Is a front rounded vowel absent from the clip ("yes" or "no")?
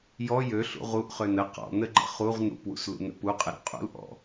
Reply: no